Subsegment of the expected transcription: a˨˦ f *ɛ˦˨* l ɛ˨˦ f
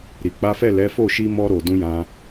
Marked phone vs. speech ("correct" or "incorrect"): correct